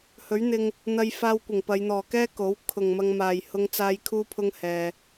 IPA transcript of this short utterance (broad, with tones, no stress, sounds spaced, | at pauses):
h ɵ˨˥ ɥ n̪ ɪ˧ ŋ | n̪ ɐ˧ j f aː˧ w kʷ ɪ˨˩ ŋ p ɐ˨˧ j n̪ ɔː˨ k ɛː˥ k o˨˥ w kʰ ʊ˨ ŋ m ɐ˧ ŋ m aː˨ j h ʊ˥ ŋ t͡s aː˥ j kʰ uː˥ pʰ ʊ˥ ŋ h ɛː˧